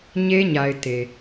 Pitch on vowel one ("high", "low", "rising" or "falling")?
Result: high